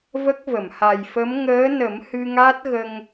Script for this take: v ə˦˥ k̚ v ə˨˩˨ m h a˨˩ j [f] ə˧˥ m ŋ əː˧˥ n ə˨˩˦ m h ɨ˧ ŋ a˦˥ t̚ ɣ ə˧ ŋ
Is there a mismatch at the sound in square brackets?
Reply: no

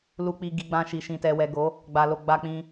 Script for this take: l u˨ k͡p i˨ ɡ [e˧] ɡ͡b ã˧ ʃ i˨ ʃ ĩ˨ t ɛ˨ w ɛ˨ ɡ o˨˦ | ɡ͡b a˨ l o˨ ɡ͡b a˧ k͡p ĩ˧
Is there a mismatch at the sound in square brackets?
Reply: yes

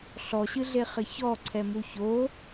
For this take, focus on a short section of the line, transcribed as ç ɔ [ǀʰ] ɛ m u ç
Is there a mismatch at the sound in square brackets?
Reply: no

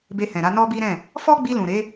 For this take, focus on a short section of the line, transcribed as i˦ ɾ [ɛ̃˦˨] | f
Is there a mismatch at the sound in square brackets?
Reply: no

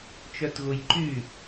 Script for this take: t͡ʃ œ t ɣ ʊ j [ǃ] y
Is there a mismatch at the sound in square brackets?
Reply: no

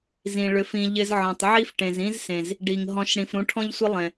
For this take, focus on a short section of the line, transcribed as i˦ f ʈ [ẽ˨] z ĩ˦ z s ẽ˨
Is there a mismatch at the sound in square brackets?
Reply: no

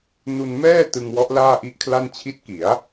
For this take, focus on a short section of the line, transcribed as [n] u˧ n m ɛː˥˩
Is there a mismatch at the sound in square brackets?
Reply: no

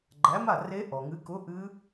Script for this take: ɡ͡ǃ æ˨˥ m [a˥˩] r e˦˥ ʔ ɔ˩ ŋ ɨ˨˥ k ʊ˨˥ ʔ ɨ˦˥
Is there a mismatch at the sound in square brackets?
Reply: no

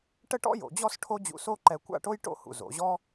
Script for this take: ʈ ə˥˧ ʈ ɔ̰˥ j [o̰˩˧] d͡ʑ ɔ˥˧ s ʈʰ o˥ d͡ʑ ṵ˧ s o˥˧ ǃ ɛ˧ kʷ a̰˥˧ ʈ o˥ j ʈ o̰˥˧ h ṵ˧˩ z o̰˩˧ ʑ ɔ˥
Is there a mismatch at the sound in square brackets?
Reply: no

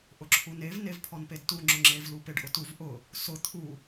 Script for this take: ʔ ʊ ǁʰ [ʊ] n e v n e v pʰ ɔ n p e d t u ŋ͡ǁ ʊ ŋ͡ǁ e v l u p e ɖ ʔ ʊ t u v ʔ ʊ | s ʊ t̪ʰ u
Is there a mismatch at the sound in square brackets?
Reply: yes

